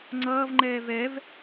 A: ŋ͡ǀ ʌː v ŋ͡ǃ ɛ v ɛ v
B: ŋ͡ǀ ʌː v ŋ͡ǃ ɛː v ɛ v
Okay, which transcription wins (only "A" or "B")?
B